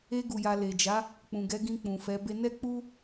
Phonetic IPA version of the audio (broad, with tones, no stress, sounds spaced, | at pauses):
e˧ ɡ u˨ j a˨ l e˨ d͡ʒ a˨˦ | k͡p ũ˨ ɡ ɛ˨˦ ɡ ĩ˧ k͡p ũ˨ f ɛ˨˦ b e˧ n ɛ˦ k͡p u˦